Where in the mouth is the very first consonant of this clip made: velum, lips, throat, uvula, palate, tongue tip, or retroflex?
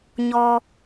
palate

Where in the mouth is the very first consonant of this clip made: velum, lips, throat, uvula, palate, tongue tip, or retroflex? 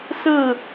tongue tip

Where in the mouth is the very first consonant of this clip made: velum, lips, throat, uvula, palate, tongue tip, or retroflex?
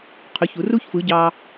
uvula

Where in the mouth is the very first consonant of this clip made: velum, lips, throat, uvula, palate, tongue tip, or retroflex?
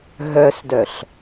throat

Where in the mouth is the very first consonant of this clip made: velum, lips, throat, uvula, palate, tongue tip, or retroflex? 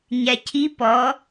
palate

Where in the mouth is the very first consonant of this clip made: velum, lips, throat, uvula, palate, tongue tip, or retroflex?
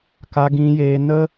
velum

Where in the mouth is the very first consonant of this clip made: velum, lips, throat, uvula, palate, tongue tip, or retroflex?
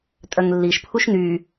tongue tip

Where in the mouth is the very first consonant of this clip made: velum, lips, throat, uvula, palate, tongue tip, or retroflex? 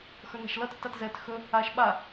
velum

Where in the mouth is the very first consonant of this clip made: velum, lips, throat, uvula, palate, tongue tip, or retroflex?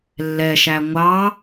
tongue tip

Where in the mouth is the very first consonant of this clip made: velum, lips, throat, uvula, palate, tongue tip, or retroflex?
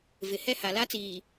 lips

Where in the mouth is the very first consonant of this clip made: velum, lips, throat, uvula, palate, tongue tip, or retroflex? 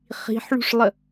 uvula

